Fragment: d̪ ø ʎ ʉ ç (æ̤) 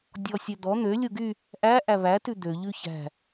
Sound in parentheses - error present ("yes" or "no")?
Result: no